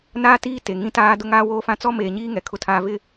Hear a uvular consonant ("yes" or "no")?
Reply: no